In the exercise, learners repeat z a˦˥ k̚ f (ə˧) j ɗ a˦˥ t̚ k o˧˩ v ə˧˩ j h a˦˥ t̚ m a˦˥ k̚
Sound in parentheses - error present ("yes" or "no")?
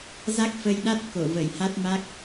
no